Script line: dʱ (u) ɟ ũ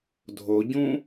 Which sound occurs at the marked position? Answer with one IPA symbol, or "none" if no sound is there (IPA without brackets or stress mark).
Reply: o